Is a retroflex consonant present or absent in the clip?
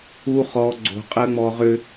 absent